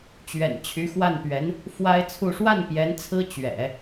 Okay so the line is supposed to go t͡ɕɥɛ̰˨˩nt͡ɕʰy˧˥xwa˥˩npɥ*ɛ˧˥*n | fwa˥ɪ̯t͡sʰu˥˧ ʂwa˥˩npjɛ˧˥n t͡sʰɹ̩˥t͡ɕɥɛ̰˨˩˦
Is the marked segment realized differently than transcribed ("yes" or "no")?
no